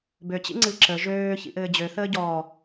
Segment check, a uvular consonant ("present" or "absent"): absent